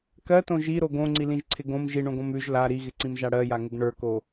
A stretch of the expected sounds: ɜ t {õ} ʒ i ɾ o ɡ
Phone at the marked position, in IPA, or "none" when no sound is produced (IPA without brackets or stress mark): õ